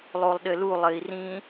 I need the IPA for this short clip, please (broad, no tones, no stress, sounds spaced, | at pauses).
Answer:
lˠ o lˠ ɗ ɘ l u lˠ ɘ i̯ r ĩ